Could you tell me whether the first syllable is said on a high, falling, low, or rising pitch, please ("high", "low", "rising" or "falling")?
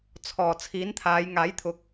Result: low